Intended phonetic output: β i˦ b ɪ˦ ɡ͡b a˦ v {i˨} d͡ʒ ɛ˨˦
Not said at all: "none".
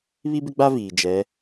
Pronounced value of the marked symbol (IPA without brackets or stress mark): iː˨